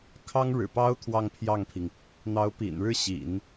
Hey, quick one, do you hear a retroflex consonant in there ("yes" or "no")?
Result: yes